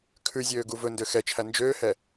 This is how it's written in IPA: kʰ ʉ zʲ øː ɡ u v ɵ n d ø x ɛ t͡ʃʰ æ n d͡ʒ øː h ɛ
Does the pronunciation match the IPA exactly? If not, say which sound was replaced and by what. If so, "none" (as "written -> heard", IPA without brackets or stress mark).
none